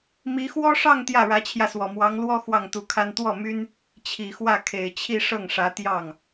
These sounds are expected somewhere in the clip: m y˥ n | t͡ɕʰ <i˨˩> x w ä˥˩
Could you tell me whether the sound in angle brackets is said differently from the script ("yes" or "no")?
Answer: no